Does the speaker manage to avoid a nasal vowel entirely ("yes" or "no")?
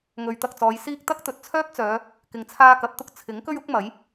yes